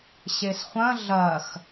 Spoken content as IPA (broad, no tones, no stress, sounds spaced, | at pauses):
ɕ e s χʷ ɐ̃ ɮ ɐ x